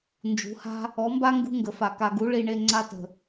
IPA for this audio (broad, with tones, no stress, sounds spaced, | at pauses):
n d͡ʒ ṳ˨˦ h a̤˦ | ɔ˨˦ m b a˦ ŋ ɡ ṳ˦ ŋ ɡ ə˨ f a˨ k a˨ ɡ u˨˦ ɭ i˧ ɳ e˧ ŋ͡ǀ a˦ t ə̤˨